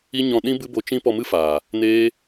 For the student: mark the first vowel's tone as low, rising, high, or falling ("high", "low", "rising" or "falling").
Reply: high